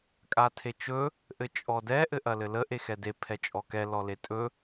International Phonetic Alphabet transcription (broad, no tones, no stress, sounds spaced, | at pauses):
kʼ a tʰ e t͡ʃ ɵ | ʔ ɘ t͡ʃʼ ɔ d ɛ ʔ ɘ ʔ ɐ l ɘ l ə ʔ e x ɛ d e pʰ ɛ t͡ʃʼ ɔ k ɛ l ɔ l e tʼ ɵ